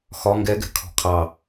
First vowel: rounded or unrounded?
rounded